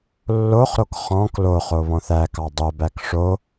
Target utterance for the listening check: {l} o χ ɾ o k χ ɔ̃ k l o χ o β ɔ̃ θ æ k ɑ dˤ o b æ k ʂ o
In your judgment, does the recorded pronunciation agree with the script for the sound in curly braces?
no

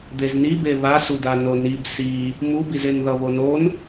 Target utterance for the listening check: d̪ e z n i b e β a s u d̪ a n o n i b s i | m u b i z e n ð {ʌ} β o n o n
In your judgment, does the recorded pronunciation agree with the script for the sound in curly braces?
yes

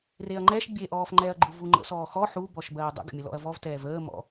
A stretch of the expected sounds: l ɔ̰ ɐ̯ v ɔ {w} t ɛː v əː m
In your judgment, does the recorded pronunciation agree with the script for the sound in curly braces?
no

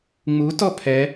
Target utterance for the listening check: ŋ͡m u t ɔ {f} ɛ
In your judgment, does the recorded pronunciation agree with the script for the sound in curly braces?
no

